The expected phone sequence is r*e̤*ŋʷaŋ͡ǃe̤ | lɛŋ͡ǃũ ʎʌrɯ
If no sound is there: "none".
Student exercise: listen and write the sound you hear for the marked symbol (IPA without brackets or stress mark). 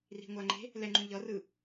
i̤